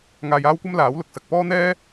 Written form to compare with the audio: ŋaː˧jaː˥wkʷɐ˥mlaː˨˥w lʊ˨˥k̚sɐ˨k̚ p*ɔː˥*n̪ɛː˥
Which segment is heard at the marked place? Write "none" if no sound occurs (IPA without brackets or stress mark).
ɔː˥